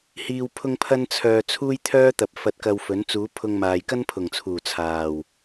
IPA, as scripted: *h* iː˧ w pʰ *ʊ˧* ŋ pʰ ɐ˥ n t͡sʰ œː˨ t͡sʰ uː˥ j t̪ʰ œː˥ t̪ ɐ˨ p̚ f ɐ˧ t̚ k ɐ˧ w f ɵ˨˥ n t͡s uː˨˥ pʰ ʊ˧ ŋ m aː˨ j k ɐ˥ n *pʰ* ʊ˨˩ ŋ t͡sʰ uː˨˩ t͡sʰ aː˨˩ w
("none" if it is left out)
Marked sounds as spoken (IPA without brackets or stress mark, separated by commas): h, ʊ˥, pʰ